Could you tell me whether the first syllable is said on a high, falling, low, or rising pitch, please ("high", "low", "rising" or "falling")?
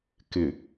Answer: low